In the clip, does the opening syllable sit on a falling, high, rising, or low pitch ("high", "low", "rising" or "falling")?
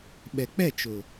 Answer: low